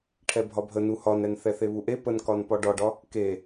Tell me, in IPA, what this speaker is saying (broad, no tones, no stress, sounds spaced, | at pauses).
ʈʰ ɛ bʱ ɒ bʱ ə n u h ɒ n ɛ n θ ɛ θ e β u ʔ e p ə n k ɒ n p ɒ ɖ ɒ ɖ ɒ | k e